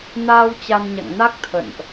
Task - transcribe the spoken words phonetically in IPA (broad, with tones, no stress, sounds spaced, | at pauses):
n aː˧ w t͡ɕ a˧ n ɲ a̰˧˨ ŋ n a˦˥ k̚ t̪ʰ ə̰˧˨ n ʔ